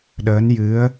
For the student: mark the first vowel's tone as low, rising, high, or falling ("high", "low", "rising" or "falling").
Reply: rising